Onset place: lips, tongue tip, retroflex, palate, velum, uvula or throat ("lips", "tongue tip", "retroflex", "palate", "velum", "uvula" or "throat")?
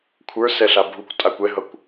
velum